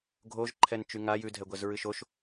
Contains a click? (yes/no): yes